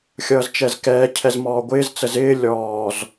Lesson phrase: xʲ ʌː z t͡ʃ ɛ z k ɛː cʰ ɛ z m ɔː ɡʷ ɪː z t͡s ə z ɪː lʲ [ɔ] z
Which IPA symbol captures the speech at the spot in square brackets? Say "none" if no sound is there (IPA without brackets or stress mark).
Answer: ɔː